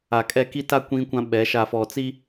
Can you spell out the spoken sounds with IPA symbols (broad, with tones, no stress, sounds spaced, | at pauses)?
a˨ kʼ ɛ˦˨ k i˦ t a˦ kʷ ĩ˦ kʷ ã˦ ɓ ɛ˨˦ ʃ a˨ f ɔ˨ t͡s i˦